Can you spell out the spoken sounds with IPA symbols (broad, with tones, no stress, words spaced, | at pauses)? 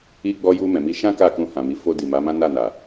i˧ɡ͡bɔ˧ju˧ mɛ̃˨mi˧ ʃã˦ ka˦˨kũ˧hã˨mi˨˦ fo˧ di˨ma˨˦mã˦ na˦˨na˨